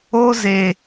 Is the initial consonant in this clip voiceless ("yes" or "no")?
no